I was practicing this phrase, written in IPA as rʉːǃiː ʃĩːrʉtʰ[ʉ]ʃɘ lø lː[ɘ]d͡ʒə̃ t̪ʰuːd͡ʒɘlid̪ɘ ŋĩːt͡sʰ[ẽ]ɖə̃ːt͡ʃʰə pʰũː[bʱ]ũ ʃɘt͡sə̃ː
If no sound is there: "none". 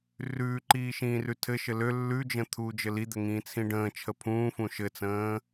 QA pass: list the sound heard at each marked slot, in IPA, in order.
ɘ, ʉ, ĩ, f

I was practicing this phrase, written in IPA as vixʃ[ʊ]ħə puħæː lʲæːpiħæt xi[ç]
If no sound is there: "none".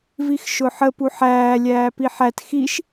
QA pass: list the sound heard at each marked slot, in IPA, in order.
ʊ, ʃ

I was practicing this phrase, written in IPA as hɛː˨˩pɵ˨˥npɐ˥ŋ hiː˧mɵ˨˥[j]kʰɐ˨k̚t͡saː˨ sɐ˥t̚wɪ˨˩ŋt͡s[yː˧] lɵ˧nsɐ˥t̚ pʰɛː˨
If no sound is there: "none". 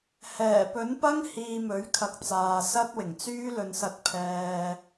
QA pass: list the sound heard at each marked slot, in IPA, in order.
ɥ, yː˥

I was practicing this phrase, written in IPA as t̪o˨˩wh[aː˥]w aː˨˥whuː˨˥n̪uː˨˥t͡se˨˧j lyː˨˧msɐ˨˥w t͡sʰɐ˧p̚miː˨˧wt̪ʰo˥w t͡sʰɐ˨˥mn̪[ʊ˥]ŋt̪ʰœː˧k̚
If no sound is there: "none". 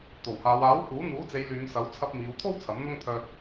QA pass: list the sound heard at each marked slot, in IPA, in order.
aː˨˧, ʊ˥

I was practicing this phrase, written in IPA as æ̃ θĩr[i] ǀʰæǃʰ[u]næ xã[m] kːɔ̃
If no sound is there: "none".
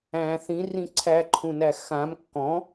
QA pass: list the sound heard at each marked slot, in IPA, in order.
ĩ, ũ, m

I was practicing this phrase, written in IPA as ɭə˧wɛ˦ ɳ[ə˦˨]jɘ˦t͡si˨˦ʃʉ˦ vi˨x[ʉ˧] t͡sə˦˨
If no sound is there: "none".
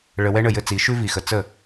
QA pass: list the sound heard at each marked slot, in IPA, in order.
ə˦˨, ə˧

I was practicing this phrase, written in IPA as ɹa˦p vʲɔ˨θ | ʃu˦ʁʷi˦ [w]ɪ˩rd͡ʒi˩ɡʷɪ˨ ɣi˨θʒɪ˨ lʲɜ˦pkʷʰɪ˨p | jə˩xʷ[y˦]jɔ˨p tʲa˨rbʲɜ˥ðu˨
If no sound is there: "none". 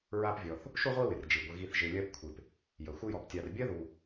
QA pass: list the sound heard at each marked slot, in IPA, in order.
w, ɪ˦

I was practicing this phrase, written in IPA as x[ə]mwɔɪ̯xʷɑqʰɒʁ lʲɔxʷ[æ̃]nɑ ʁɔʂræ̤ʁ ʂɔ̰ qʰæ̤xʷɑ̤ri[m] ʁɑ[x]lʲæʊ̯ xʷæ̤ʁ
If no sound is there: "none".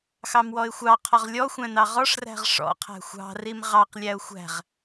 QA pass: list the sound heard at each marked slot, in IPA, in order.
ɑ, æ̃, m, q

